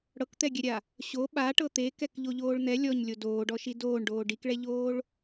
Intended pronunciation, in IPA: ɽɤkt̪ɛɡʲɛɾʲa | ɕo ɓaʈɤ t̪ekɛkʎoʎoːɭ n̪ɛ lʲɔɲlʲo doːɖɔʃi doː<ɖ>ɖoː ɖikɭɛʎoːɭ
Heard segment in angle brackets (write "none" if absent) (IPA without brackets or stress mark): ɳ